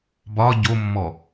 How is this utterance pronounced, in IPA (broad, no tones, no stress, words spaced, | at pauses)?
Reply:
bɒ ɟomːɔ